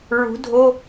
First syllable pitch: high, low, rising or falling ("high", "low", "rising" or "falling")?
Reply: rising